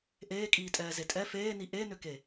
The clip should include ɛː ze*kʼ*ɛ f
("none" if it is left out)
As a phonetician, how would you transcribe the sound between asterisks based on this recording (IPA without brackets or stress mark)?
tʼ